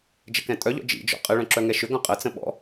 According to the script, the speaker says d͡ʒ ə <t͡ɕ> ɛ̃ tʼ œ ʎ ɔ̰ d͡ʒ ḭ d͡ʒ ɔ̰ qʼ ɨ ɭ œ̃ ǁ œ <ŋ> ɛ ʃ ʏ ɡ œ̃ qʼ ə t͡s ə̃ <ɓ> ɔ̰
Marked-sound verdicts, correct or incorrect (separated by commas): incorrect, correct, correct